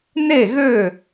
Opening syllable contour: falling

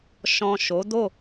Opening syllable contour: low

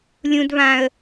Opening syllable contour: high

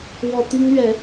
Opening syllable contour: low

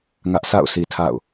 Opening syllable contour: high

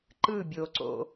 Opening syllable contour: falling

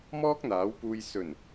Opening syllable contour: high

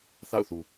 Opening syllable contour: falling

